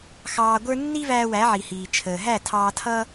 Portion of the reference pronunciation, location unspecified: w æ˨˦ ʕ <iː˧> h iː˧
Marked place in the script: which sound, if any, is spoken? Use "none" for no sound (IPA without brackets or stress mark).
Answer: i˧